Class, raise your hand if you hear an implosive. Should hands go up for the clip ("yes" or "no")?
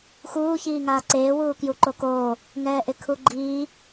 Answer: no